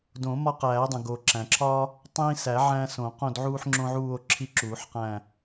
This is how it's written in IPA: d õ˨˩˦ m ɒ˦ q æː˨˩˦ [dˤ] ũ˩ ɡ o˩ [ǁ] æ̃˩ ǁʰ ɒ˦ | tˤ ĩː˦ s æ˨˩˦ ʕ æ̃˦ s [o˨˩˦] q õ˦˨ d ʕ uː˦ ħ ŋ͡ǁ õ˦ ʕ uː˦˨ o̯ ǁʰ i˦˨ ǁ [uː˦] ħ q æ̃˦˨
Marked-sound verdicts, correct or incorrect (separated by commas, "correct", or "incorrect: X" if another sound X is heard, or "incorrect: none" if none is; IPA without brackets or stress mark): correct, correct, incorrect: õ˨˩˦, incorrect: uː˨˩˦